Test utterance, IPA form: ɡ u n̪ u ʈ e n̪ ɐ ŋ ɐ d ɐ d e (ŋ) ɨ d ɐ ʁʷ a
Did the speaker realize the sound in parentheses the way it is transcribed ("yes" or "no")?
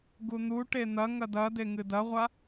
yes